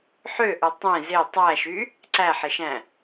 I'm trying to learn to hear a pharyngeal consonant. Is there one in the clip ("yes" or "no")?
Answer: yes